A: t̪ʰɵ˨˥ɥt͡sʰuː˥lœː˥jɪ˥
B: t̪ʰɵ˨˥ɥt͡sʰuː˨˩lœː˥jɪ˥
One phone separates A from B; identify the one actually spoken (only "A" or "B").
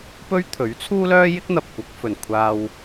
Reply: A